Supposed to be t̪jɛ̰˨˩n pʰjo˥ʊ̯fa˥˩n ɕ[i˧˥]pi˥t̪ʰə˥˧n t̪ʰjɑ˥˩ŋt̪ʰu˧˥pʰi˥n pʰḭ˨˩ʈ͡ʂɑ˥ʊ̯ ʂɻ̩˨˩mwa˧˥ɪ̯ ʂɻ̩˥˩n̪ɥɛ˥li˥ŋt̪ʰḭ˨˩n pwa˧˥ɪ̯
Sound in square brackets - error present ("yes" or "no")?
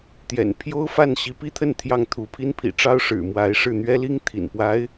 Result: no